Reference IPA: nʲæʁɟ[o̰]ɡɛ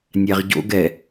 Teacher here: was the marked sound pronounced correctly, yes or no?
yes